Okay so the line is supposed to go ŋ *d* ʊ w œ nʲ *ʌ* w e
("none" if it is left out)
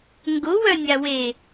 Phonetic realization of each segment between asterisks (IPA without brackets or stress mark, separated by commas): ɡ, a